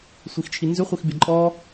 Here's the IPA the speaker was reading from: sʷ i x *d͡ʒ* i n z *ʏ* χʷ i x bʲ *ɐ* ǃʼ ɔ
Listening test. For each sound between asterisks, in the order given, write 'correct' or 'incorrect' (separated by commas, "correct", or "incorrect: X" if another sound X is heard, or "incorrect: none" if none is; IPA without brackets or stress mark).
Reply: incorrect: t͡ʃʰ, correct, correct